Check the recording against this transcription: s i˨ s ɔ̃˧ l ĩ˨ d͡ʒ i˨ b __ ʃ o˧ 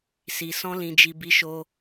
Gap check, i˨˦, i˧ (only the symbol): i˨˦